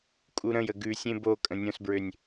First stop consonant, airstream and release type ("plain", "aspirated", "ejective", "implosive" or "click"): ejective